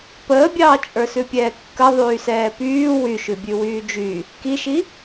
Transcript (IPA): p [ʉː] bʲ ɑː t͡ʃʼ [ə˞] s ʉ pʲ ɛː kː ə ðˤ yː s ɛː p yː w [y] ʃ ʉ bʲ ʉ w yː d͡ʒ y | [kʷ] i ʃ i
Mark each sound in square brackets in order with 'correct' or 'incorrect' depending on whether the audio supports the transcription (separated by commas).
incorrect, correct, correct, incorrect